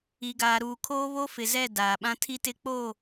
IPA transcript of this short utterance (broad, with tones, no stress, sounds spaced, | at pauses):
i˨ ɡ aː˨ ɾ uː˨ kʰ oː˦ β o˦ f ɪ˨ z ɛ˦˨ d aː˨ ɓ ã˦ tʰ i˦ t ɪ˦ k͡p o˦˨